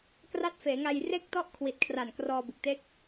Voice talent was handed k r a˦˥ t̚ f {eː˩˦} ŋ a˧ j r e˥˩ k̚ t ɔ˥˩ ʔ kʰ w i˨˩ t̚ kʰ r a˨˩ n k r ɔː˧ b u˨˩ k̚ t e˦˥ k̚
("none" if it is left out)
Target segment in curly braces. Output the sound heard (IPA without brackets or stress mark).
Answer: eː˩˦